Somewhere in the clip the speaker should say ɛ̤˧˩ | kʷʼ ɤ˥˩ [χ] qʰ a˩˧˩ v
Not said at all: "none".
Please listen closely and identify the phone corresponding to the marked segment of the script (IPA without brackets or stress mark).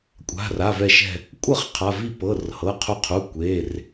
χ